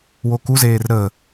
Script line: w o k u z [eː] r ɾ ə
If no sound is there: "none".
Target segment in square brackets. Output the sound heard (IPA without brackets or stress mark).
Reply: eː